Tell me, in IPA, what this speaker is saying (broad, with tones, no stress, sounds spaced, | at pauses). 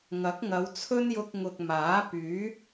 ŋ ɐ˨˥ k̚ ŋ ɐ˨˧ w t͡sʰ ɵ˥ n j ʊ˧ k̚ ŋ ʊ˨ k̚ m aː˨˥ p yː˨˥